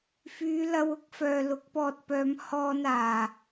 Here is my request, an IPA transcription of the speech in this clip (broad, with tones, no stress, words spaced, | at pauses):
fyː˨˧lɐ˧w ʊ˥k̚fœː˨ lʊ˨˥k̚pɔː˧t̚pœː˨˧m hɔː˧naː˨˩